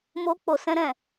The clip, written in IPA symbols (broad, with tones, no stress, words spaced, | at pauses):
mo˧k͡po˨sɛ̃˧ɾɛ̃˨